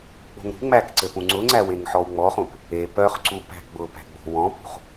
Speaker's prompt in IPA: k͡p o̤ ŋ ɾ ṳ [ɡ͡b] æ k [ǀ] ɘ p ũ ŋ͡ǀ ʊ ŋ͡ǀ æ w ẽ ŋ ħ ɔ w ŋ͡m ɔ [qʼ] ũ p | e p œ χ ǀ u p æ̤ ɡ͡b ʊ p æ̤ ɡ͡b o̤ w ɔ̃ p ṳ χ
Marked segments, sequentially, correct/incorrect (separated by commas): incorrect, correct, incorrect